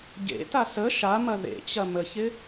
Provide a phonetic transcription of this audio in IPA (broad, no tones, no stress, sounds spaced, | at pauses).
ɟ ḛ t a s ə ʃ a m ɐ ð ḛ t͡ɕ ɐ m ə ç ɪ